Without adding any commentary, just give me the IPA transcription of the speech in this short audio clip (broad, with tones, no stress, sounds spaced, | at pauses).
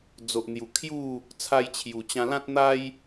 d͡z o˨ ʔ n̪ j u˨˩ kʰ j u˥˧ | t͡sʰ a˧ j t͡ɕʰ j u˨˩ t͡ɕ ã˧ l ã˦ t̚ n̪ a˦ j